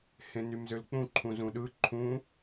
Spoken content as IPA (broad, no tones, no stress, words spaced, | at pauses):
hẽnymzølk͡pũ ǃʰũzũɗɯ ǃʰũ